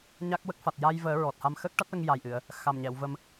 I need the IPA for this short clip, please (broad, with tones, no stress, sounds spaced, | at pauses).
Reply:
ɲ a˦˥ k̚ w ə˦˥ k̚ f a˨˩ t̚ j a˧ j v əː˨˩˦ ɹ ɔ˨˩ t̚ h a˧ m x əː˦˥ k̚ ʈ a˦˥ t̚ l ə˧ ŋ j a˨˩ j ʔ ɨ˨˩˨ ə̯ | x a˨˩ m ɲ ɛ˨˩˨ w v ə˧ m